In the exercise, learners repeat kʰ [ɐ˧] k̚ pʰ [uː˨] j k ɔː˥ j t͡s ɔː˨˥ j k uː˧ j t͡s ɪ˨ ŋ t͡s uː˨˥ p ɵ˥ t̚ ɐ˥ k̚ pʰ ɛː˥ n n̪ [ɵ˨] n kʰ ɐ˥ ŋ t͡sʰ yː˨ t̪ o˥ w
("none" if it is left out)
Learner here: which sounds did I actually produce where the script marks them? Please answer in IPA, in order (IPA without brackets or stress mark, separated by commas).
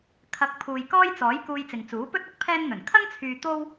ɐ˧, uː˨, ɵ˨˩